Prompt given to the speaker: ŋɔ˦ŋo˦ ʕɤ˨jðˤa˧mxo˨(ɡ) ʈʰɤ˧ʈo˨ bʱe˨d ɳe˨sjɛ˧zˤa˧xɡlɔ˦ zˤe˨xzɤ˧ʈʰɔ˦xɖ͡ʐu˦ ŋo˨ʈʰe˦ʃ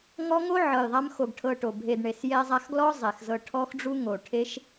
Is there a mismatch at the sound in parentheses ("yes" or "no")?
no